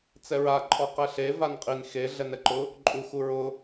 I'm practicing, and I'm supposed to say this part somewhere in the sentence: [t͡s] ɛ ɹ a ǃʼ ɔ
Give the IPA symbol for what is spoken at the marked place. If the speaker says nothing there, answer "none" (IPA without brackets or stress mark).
t͡s